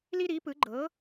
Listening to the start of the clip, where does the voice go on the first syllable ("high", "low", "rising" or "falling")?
high